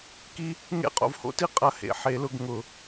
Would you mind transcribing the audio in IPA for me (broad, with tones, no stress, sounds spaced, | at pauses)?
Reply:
k i˦ | ŋ ḛ˦ qʼ o̰˨ v h o̰˦ t i˦ qʼ ɐ˦ h ḛ˨ ħ e˨˦ l ʊ˧ ɡ ŋ ʊ˨